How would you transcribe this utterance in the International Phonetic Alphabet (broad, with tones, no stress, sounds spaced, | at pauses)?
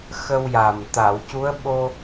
x ə˧ w j a˨˩ m t̪ a˨˩˨ w c u˧˥ ə̯ ɓ o˧